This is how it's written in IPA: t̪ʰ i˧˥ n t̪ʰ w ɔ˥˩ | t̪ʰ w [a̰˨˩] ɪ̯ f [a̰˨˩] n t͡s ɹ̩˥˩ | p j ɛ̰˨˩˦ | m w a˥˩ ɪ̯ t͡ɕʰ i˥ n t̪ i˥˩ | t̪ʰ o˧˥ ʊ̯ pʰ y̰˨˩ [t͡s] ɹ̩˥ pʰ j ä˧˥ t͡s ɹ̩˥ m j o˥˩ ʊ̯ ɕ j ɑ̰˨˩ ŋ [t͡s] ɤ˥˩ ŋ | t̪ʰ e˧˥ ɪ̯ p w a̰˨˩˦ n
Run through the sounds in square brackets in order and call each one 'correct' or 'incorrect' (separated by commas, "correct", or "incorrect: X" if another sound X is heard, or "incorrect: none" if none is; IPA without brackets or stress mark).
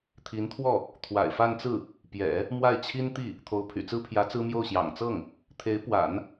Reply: correct, incorrect: a˥˧, correct, correct